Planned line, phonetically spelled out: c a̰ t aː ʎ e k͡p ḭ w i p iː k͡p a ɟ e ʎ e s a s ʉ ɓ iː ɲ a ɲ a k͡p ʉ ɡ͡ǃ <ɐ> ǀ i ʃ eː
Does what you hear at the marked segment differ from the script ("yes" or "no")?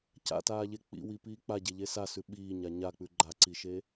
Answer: yes